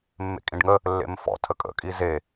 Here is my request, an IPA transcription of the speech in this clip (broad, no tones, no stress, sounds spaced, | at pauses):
mː ḛ kʼ ĩ ɖ ŋ ə | lː ḛ m f ɔ̰ tʰ ə kʼ ə̰ kʼ i z e